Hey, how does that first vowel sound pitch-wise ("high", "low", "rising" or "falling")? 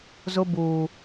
high